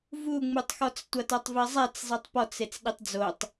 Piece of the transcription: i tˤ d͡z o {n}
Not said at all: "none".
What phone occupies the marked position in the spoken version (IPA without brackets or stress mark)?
tˤ